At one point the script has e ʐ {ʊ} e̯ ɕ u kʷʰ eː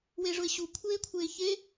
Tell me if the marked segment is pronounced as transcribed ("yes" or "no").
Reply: yes